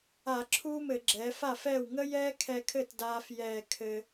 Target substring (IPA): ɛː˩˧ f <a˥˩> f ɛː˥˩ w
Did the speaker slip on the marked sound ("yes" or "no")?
no